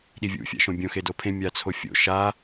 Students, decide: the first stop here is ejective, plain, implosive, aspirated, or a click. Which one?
implosive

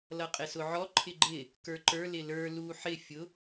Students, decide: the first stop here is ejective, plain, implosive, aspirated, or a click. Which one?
ejective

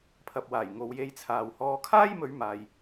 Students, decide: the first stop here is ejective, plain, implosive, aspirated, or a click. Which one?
aspirated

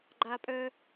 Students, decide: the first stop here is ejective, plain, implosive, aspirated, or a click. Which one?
click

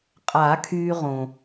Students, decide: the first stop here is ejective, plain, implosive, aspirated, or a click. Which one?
ejective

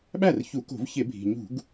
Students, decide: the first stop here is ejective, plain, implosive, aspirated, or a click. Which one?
implosive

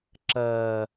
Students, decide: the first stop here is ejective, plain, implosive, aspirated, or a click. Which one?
click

